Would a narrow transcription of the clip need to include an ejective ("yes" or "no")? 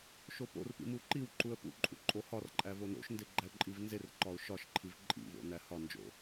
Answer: yes